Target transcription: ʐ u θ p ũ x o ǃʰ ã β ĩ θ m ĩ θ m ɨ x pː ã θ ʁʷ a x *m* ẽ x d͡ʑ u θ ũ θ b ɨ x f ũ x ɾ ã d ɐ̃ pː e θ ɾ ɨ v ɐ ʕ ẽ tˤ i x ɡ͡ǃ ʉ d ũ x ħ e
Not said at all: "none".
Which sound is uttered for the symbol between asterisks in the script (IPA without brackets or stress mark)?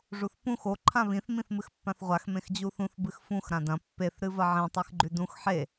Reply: m